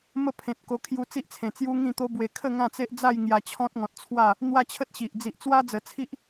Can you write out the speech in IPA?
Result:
m ə˦ pʰ ẽ˨ t̚ k o˧ kʰ j u˧ t͡s i˦ ʔ t͡sʰ ẽ˨˩ t͡s j u˦ ŋ ĩ˥˧ t̪ o˦ b w e˧ kʰ ə˥˧ ŋ ã˥˧ t͡s e˦ ʔ d͡z a˥˧ j ŋ j a˧ t͡ɕʰ ɔ̃˦ t̚ ŋ ɔ̃˨ t̚ t͡sʰ w a˥˧ | n̪ w a˦ t͡ɕʰ ə˦ t̚ ɕ i˨ ʔ d͡z i˨ ʔ t͡s w a˦ d͡z ə˨˩ t͡sʰ i˦ ʔ

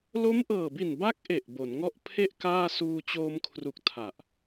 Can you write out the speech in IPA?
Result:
l o˦˥ m ʔ ɤː˨˩ b i˨˩ n b a˦˥ k̚ ʔ e˨˩ ʔ b o˩˦ n ŋ ɔ˥˩ ʔ pʰ e˥˩ ʔ k aː˥˩ s uː˧ t͡ɕ oː˧ m kʰ r u˨˩ k̚ tʰ a˨˩ ʔ

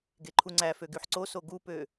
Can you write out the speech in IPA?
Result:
ɡ e ǃʰ u ŋ͡ǀ æ f ø ɡ y ħ ǀ o s o ɡ u p ø

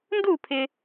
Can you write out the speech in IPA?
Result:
n d u˥˧ pʰ ɪ˧

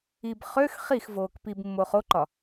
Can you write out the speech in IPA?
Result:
i b χ ø x χ i x v oː k p i b mː o χ o ǃ ɒ

